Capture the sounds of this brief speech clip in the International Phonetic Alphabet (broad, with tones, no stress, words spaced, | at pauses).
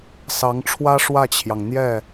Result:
sɑ˧˥ŋʈ͡ʂʰwä˥ ʂwä˥˩t͡ɕʰjɑ˩ŋ n̪jɛ˥˩